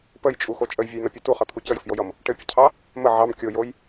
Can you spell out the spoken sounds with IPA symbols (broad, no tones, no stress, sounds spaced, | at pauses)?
p ə j t͡ʃʼ u x o t͡ʃʼ ə j vʲ o j n ʌ pʲ u t u χ ʌ t̪ʰ u c ə j ɘ f j o j ʌ m | ʈ ɘ pʲ ʌ cʰ ɑ | m ə ʕ ɑ m kʲ o j o j